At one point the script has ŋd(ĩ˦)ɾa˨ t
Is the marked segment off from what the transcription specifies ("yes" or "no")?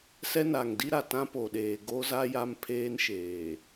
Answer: yes